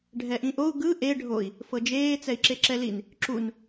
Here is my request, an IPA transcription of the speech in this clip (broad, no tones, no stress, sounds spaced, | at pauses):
ɖʱ ɛ ʔ ĩ ʔ o u̯ ɡ ɯ ʔ e ɖʱ o i̯ | f ɤ d͡ʒ eː t͡s ɛ i̯ ǁ e ǁ ɛ l i n | ǁ u n